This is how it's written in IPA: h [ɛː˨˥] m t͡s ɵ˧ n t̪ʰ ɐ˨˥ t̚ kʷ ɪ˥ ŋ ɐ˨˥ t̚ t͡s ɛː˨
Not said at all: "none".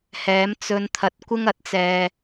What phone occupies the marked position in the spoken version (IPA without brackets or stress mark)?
ɛː˨˥